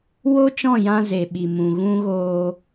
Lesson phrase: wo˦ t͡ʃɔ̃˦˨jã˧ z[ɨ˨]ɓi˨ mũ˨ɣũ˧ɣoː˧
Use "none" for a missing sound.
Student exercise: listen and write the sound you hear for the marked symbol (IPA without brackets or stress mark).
e˨